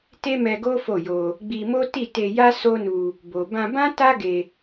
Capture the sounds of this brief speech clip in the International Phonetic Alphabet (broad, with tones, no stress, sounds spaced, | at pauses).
t e˦ m ɛ˧ ɡ o˦ f o˦˨ j o˧ | ɡ͡b i˧ m o˦ t i˦˨ t e˧ j a˦ s o˦ n u˧ | b o˨ b ã˧ b ã˦ t a˦ ɡ e˧